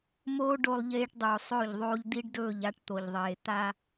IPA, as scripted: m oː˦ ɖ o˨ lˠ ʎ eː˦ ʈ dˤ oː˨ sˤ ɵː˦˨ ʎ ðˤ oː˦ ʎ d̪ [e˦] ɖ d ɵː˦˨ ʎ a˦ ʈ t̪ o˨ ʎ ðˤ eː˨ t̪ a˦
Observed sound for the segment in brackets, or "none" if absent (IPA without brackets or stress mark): i˦